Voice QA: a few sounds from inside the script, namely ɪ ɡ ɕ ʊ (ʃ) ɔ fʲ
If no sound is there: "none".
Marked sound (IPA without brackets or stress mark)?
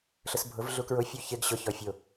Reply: ç